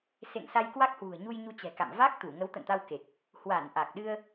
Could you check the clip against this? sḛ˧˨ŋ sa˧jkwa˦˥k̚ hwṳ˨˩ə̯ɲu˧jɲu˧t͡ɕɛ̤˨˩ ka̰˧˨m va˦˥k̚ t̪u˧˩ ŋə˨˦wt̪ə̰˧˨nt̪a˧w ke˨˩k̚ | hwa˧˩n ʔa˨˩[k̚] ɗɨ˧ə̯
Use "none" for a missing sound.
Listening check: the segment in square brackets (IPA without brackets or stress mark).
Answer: k̚